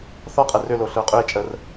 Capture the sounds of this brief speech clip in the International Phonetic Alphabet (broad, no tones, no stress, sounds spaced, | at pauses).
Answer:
θ ɔ qʼ ɛ r ʏ l o ɬ ə˞ qʼ ʏ e̯ t͡ʃʼ ə r